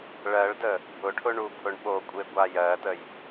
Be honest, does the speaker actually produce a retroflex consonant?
yes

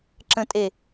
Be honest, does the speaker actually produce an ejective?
yes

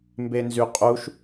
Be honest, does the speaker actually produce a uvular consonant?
yes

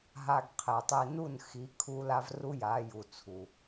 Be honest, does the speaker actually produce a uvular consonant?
yes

